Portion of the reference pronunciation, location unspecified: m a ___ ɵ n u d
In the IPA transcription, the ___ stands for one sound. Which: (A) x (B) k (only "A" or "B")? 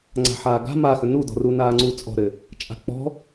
A